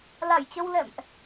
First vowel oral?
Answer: yes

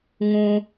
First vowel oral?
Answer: no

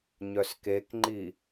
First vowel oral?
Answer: yes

